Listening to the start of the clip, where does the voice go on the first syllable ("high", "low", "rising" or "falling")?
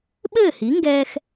falling